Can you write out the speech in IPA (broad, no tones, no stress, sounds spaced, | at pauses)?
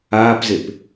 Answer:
aː p z e p